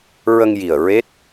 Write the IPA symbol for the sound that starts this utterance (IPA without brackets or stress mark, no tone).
ɹ